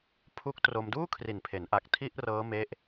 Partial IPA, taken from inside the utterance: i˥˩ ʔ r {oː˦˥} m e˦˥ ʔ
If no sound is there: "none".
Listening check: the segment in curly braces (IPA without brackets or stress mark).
ɤː˦˥